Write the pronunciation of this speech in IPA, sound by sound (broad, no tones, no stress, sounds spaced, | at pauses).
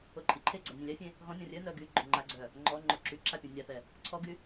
o ǃʼ i ǃʰ e ɡ͡ǀ a nʲ ẽ lʲ a fʲ ẽ | ɣ ɔ̃ nʲ ɔ̃ rʲ œ n œ ɡ y ɡ͡ǃ o ŋ͡ǃ a ɡ͡ǀ œ | ŋ͡ǃ ɔ ŋ͡ǃ o ǁ y ǁ a pʲ ɔ̃ nʲ a θ ɛ | ǀʰ ɔ ɡ y